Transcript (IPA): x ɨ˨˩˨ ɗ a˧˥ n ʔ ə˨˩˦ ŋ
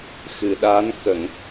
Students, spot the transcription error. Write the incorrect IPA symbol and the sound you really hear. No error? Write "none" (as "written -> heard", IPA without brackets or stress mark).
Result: ʔ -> k